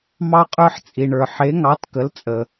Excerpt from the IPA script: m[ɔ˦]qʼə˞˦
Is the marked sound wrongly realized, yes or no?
yes